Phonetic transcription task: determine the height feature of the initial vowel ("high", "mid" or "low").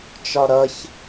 low